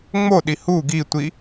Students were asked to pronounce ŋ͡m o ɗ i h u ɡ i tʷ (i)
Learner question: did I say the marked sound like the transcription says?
yes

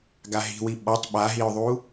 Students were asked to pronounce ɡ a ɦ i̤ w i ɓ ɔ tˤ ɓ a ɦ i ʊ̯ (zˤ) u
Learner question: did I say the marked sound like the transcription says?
no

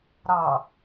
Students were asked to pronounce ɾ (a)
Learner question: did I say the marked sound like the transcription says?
no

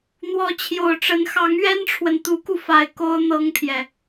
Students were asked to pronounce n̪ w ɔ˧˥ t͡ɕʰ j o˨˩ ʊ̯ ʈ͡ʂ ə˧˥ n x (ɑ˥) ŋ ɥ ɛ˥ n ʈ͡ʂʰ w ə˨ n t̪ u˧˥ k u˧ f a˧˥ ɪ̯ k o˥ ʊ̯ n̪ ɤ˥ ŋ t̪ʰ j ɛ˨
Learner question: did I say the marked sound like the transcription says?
no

